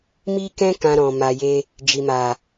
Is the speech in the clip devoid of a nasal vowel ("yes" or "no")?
no